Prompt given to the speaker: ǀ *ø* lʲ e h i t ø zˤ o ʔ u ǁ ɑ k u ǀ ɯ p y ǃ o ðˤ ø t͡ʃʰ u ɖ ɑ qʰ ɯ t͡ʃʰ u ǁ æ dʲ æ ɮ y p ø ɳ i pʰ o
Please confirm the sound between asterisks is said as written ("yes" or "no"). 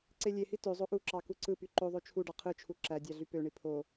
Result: no